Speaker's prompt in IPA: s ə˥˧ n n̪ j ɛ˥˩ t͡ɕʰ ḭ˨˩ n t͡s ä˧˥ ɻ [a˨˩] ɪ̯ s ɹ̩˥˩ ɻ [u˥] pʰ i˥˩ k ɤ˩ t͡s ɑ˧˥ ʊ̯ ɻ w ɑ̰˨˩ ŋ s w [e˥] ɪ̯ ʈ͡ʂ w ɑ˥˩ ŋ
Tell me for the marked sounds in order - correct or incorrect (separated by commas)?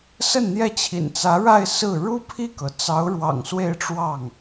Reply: incorrect, correct, incorrect